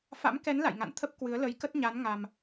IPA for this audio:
fa̰˧˥mkɛ˨˦n la̰˧˨jŋa̰˧˨nt̪ʰə˦˥p̚ kwɨ˨˦ə̯lə˨˦j kə˦˥t̚ɲa˨˦n ŋa˨˩m

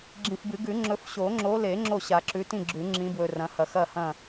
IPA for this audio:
ɡ͡ǁĩ˨fbɨ˨˩˦ ɡʉ˨˩˦ŋ͡ǁɵ˨˦f ɕo˨˩˦ŋ͡ǁo˨˦le˨˩˦ ŋ͡ǁo˥˨ɕa˨˩˦ǁʉ˨˦ tĩ˥˨ɡ͡ǁʉ˨˩˦ ŋ͡ǁĩ˨˦bwɵ˨ rɐ̃˨˦hɐ˨ xɐ˥˨hɐ̃˥˨

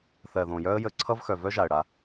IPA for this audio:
θɜ˨ðõ˨jœ˦ə̯ jə˦ ǀʰʌ˦vxœ˨ vœ˦ ʒa˨ə̯ɽa˦

